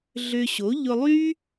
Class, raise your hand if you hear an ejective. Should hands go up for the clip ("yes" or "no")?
no